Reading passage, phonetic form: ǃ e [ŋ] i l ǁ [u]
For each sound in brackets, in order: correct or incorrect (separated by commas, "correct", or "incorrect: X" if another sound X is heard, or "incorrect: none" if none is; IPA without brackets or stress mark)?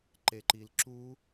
incorrect: ǃ, correct